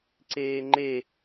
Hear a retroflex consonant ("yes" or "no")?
no